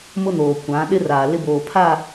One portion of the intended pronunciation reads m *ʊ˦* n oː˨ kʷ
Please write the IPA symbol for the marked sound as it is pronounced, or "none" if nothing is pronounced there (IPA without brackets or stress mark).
ʊ˦